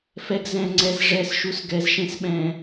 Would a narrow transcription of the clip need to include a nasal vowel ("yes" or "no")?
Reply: yes